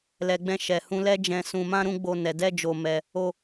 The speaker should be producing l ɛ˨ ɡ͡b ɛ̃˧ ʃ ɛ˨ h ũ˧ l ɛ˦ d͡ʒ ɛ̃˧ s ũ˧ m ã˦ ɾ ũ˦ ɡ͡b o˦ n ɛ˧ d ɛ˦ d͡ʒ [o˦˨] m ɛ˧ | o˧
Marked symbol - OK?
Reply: no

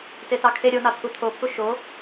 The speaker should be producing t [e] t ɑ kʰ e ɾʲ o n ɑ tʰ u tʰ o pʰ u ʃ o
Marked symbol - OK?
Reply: yes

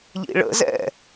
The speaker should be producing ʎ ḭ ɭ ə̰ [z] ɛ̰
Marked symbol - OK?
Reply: yes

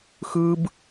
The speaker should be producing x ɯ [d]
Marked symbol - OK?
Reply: no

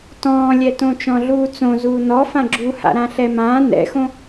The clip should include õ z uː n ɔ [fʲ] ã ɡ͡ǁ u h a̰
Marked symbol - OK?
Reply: no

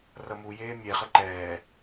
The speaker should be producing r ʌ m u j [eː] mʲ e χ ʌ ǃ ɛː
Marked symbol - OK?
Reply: yes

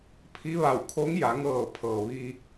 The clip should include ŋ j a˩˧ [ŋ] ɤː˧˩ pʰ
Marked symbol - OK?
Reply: yes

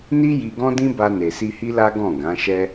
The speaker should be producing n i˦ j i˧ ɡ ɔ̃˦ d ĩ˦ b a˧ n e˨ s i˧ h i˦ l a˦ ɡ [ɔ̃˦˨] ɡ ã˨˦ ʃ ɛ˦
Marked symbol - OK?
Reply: yes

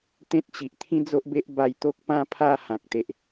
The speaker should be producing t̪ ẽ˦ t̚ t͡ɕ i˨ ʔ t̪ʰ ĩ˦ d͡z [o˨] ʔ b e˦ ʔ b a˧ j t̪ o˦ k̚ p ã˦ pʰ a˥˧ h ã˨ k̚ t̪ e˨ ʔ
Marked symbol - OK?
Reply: no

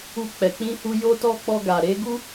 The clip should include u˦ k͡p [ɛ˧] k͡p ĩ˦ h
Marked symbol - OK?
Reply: yes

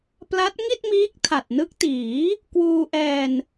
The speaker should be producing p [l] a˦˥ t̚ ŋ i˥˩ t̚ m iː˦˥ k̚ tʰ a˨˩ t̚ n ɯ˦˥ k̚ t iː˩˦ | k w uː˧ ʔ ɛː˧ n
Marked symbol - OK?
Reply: yes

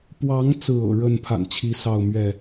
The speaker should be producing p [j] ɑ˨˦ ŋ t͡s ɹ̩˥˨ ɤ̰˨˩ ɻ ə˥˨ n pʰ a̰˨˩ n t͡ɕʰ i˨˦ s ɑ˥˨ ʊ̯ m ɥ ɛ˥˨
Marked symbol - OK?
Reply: no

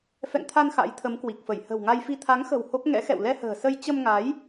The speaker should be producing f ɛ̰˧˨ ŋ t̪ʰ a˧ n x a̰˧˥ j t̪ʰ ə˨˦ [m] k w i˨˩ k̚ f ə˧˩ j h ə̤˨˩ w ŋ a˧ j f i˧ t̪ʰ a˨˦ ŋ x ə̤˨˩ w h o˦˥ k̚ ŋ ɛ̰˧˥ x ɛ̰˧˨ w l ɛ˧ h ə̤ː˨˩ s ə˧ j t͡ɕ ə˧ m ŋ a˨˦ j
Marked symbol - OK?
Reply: yes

